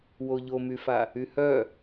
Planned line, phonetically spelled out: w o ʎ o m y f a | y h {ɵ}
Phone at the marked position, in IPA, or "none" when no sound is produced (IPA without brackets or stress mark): œ